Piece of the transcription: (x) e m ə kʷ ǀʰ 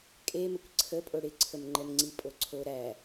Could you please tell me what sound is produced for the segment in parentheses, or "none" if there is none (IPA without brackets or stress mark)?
kʼ